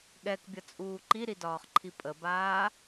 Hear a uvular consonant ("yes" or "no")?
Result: yes